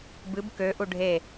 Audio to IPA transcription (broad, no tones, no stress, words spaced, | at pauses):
bɨb køʔu ɖʱe